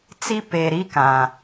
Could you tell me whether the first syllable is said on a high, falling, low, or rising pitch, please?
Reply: high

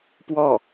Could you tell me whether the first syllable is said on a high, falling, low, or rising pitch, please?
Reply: falling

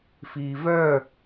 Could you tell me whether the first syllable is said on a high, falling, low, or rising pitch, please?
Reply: low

